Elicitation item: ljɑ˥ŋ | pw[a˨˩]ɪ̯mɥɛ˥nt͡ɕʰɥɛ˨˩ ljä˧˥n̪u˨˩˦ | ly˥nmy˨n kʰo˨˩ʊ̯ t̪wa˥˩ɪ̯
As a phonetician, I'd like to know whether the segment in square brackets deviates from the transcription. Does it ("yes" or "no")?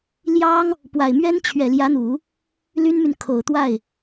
no